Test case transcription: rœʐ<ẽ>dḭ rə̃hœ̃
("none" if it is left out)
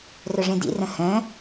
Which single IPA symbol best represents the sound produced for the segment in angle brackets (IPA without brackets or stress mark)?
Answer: ẽ